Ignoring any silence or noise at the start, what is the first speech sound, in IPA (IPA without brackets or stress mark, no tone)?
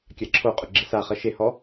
kʲ